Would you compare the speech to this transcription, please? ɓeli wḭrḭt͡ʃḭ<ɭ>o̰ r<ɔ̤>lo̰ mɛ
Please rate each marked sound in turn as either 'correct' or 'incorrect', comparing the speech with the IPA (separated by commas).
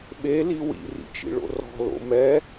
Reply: correct, correct